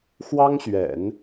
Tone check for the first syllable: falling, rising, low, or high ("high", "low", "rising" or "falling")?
high